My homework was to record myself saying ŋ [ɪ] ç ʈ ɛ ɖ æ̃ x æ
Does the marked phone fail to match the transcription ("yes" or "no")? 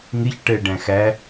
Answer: no